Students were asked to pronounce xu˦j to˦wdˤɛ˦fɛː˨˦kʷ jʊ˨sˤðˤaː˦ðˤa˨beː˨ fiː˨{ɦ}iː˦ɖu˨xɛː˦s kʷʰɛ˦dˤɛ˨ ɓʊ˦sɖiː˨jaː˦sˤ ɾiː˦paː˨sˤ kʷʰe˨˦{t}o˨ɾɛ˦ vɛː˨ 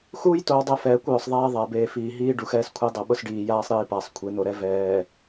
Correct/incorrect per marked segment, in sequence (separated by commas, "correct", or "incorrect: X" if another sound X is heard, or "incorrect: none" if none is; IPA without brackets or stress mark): correct, incorrect: n̪